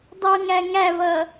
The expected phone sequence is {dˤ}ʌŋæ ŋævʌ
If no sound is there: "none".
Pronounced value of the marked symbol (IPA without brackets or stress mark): dˤ